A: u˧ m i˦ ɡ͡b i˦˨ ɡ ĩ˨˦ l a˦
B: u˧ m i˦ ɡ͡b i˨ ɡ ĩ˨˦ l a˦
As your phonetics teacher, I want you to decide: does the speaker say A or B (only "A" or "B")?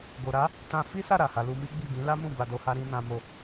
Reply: A